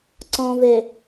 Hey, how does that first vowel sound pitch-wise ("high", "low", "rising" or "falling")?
low